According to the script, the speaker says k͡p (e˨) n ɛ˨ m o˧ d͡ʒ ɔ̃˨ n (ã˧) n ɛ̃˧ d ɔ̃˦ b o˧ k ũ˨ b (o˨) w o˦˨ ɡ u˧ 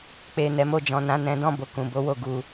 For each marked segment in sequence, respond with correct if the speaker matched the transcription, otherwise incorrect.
correct, correct, incorrect: o˨˦

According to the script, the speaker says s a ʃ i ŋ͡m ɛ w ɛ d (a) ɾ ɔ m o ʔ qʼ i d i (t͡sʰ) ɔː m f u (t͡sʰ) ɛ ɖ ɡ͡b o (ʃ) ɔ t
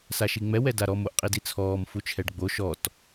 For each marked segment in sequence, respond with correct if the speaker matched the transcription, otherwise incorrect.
correct, correct, incorrect: t͡ʃʰ, correct

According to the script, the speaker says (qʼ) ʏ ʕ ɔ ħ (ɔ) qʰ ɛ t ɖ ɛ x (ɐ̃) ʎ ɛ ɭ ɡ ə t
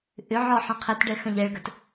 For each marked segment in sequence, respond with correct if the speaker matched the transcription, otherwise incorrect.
incorrect: ʔ, incorrect: ɔ̃, correct

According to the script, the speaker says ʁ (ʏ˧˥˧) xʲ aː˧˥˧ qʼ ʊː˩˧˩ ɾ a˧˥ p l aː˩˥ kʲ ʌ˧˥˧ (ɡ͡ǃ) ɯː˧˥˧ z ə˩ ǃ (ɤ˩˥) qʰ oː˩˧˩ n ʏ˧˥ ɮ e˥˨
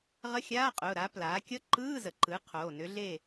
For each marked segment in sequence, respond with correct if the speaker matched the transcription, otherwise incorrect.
incorrect: ə˧˥˧, incorrect: ǃ, incorrect: ɯ˩˥

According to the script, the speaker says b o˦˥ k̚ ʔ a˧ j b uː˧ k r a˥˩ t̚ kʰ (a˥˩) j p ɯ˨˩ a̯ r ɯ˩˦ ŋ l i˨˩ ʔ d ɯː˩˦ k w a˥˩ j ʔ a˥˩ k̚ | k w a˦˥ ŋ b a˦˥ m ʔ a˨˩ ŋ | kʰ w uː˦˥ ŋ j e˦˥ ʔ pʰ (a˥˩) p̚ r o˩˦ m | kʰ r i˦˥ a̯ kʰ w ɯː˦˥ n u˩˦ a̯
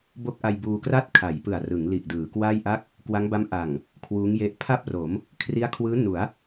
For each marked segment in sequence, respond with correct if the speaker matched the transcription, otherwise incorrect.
incorrect: a˩˦, correct

